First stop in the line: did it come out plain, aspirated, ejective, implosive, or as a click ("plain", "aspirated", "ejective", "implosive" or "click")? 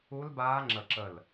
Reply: plain